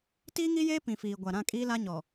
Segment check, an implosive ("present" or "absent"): absent